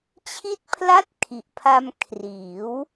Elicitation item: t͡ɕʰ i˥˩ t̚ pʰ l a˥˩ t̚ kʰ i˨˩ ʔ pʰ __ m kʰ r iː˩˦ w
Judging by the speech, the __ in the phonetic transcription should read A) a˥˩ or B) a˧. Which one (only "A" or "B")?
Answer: B